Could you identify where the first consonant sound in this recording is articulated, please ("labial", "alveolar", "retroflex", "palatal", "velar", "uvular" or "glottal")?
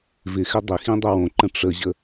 labial